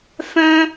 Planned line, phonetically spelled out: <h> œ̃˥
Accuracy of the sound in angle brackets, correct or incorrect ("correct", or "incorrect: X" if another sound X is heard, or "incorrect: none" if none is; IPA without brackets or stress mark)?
incorrect: f